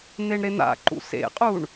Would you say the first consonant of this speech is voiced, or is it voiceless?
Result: voiced